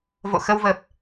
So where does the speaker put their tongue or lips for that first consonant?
lips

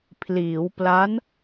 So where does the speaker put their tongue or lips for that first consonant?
lips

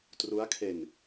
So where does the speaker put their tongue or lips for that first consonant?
tongue tip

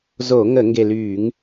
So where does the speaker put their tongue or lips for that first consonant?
tongue tip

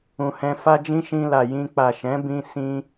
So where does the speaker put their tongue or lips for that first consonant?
throat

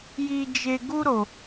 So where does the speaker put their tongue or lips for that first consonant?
palate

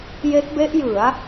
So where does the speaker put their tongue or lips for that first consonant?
palate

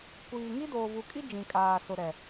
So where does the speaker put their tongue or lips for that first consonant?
velum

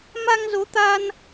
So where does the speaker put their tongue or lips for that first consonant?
lips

